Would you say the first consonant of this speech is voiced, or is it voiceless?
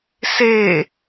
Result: voiceless